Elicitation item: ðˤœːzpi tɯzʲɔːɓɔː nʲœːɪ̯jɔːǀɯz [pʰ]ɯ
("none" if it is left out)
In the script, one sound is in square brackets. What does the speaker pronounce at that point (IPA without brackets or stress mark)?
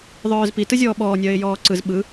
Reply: ɓ